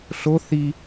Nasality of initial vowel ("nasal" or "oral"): oral